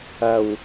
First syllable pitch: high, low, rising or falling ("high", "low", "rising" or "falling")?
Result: low